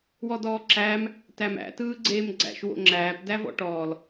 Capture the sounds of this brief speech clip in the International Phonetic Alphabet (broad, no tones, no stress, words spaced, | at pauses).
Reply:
wɔdɔːǁæːm | tæmæ̰ tɯːɡ͡ǀeːmɡ͡ǀæ̰ʃ wo̰ŋ͡ǁæːp dævɔ̰ʈɔːl